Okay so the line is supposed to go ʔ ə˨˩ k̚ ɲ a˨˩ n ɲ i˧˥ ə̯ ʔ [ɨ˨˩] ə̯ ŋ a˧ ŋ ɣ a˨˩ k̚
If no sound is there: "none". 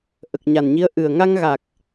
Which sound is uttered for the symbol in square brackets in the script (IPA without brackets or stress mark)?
ɨ˨˩